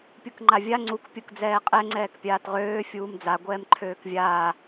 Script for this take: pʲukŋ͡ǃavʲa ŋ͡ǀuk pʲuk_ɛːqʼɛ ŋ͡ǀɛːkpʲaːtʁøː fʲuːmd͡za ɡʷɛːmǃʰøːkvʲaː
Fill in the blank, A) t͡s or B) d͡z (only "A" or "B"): B